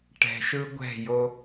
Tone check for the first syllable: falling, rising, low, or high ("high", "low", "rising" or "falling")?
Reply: low